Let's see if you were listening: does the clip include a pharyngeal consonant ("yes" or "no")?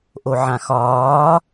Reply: yes